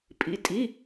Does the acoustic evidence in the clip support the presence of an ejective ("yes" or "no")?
yes